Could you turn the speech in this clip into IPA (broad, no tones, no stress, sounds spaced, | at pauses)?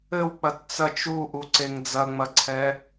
ɘ w k͡p ɐ t t͡s ɐ t͡ʃ u ʔ u ǀ e ŋ d͡z ɐ ŋ͡m ɐ ǀʰ ɛ